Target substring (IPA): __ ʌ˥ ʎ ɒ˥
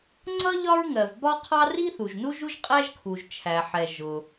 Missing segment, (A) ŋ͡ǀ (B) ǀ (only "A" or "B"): A